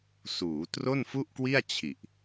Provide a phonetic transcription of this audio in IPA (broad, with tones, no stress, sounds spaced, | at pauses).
s uː˩˦ t r o˥˩ n f u˥˩ ʔ k w i˥˩ a̯ t͡ɕʰ i˨˩ ʔ